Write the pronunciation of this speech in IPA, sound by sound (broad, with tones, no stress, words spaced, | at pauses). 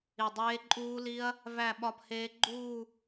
i˧˩dˤeː˦˥ǃʼuː˦˥li˦˥ɐ̯ | væ˥˧ɓɒ˦˥pheː˦˥ ɡ͡ǃuː˥˧